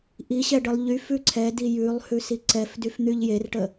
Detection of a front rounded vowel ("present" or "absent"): present